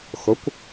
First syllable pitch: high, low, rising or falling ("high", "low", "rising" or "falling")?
rising